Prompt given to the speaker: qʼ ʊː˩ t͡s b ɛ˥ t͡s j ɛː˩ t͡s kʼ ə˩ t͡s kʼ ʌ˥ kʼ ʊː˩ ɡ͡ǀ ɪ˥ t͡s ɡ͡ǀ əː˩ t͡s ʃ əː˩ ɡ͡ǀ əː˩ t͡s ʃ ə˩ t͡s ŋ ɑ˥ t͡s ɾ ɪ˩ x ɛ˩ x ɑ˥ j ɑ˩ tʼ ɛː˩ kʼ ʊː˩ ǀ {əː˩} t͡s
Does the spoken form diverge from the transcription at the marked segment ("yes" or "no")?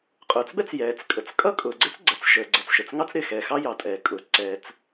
yes